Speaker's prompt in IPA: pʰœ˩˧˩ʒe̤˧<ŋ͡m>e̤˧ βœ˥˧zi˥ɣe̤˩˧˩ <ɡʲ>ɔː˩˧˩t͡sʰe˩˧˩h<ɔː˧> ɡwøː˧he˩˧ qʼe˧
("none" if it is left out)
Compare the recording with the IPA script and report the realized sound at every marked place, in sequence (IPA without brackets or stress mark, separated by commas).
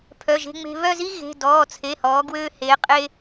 ŋ͡m, d, ɔː˩˧